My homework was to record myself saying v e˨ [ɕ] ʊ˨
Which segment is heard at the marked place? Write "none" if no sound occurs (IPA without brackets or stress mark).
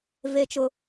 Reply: t͡ʃ